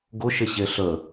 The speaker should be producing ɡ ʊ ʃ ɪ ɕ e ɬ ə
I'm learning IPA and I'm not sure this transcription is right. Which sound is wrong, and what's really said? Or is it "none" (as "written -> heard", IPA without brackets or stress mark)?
none